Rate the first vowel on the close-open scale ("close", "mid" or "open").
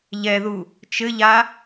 mid